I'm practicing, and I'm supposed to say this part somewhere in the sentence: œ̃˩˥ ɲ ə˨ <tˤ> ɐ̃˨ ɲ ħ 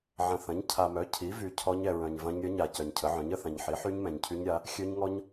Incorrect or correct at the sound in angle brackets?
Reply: incorrect: θ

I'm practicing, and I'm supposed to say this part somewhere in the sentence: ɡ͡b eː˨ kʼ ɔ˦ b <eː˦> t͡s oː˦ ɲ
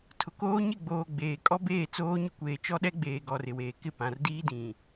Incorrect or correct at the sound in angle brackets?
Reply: incorrect: eː˦˨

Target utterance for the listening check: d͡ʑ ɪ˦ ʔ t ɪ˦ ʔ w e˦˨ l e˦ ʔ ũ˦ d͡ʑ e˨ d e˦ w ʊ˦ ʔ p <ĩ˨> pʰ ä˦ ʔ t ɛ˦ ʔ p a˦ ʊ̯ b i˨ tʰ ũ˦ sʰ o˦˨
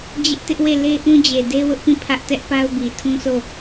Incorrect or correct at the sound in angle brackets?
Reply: incorrect: ĩ˦˨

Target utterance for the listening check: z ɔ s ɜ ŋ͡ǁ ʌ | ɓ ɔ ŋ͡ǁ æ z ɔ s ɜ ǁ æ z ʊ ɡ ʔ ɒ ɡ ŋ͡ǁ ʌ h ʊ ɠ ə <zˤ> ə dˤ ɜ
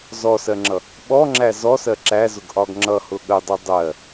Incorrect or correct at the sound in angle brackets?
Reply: incorrect: dˤ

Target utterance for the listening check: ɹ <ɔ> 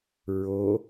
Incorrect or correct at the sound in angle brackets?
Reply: incorrect: o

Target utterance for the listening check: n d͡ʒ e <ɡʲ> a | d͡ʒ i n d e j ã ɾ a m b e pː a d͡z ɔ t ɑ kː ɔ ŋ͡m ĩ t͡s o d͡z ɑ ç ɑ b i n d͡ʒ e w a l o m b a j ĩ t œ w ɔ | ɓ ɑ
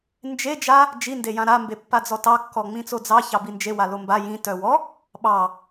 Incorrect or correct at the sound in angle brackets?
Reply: incorrect: d͡ʒ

